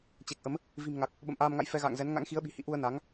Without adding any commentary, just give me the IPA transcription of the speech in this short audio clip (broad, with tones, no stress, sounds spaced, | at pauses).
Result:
t͡ɕ e˨˩ k̚ ʔ ə˨˦ m | v i̤˨˩ m ŋ a˨˩ k̚ | ɓ ə̰˧˨ m ʔ aː˧ m ŋ a̰˧˨ j f ɛ˧ ɣ a̰ː˧˨ ŋ z ɛ˨˦ n ŋ a̰˧˥ ŋ x i˨˦ ə̯ ɓ i̤˨˩ h ḭ˧˨ ʔ u˧ ə̯ n a˨˦ ŋ